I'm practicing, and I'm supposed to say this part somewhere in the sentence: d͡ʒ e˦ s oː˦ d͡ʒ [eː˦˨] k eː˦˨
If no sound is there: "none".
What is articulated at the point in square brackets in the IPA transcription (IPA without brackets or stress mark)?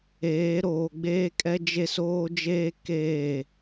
eː˦